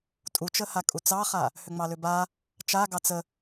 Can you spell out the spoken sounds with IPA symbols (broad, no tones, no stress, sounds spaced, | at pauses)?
tʼ u t͡ʃ ə h a kʼ u t͡s ɑ χ a | h ʏ ŋ͡m ɑ l ʏ b a | t͡ʃ a ɡ ɑ t͡s ə